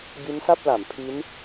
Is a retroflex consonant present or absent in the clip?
absent